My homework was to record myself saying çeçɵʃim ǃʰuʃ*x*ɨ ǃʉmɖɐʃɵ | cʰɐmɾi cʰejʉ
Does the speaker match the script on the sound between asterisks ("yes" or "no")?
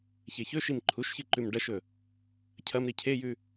no